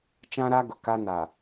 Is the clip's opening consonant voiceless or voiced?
voiceless